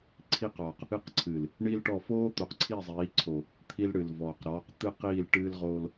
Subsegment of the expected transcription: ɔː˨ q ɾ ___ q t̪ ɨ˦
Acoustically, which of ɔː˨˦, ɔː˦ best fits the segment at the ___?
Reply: ɔː˨˦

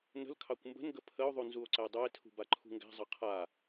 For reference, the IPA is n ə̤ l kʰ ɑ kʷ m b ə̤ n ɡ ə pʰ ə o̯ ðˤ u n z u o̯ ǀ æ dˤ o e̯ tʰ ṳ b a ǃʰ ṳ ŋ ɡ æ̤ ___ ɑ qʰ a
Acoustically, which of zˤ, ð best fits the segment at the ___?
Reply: zˤ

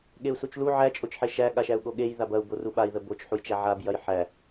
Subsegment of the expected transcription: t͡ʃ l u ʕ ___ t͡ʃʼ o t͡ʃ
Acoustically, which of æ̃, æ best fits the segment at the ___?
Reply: æ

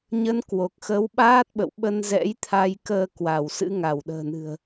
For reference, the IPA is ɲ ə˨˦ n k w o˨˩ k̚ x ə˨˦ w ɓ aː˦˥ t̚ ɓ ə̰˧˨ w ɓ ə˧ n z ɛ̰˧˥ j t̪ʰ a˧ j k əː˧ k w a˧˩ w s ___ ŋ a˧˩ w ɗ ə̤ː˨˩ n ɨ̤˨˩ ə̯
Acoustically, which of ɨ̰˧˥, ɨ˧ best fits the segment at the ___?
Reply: ɨ̰˧˥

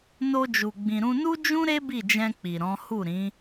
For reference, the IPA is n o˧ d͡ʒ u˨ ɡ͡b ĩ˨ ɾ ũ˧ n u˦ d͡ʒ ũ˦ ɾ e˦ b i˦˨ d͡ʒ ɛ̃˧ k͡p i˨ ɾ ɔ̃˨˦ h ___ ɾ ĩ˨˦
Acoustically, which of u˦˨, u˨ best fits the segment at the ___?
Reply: u˦˨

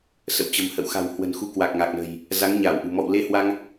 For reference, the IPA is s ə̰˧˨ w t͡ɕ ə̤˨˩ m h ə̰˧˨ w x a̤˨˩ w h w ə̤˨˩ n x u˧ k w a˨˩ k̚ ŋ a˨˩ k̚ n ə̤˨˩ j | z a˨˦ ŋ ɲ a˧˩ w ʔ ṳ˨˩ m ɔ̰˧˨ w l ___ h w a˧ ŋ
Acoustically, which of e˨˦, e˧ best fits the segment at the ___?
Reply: e˧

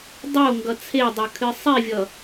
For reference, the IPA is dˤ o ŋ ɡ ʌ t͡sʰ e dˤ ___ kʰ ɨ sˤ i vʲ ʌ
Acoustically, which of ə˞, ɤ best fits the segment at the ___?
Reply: ə˞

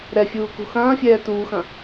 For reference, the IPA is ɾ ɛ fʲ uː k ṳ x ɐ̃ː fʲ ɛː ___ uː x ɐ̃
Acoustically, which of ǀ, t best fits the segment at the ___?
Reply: t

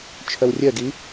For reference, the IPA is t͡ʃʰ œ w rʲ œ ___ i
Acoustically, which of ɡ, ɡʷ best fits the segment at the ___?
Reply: ɡ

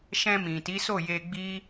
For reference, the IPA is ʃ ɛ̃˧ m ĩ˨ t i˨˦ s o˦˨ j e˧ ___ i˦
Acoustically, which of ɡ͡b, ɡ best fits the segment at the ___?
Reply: ɡ͡b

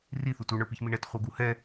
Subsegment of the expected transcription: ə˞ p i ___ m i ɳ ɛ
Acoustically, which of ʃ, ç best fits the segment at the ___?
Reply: ç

